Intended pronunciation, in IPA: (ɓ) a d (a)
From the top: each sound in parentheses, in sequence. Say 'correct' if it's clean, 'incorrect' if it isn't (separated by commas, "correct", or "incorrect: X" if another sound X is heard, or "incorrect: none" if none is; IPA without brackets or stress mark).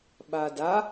correct, correct